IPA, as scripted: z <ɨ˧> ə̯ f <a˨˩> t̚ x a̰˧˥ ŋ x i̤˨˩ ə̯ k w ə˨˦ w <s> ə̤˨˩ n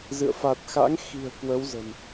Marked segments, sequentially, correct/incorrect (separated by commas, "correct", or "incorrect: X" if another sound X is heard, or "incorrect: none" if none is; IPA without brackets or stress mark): incorrect: ɨ̰˧˨, correct, incorrect: z